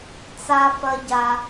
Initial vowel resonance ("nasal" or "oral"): oral